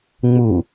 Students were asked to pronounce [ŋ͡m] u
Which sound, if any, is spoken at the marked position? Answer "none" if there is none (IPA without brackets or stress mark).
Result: ŋ͡m